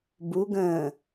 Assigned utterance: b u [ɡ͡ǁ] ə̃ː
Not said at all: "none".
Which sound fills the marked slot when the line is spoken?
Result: ɡ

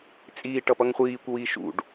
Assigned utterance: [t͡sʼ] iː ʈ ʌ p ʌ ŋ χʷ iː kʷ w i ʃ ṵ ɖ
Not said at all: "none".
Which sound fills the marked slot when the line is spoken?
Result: t͡sʼ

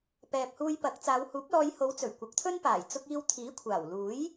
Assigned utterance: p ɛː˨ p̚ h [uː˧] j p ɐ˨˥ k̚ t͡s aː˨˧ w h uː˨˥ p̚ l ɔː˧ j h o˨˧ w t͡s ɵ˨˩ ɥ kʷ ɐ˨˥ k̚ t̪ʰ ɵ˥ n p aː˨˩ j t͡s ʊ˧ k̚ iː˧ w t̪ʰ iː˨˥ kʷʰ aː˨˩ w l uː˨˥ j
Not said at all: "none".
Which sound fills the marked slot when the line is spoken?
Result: uː˧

